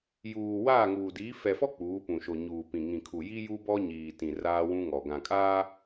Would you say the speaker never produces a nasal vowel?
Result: no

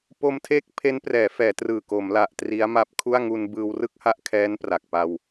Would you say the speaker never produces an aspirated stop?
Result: no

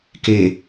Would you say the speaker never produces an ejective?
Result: yes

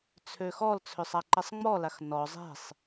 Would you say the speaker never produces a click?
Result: no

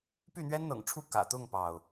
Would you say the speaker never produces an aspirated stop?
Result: no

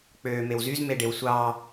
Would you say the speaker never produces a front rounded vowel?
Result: no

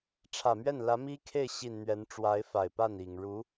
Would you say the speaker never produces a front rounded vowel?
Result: yes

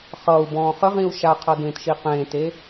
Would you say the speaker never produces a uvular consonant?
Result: no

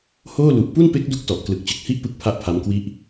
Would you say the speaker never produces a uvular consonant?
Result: yes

